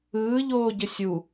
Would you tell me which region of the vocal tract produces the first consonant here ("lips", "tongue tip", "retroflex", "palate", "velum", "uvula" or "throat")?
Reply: palate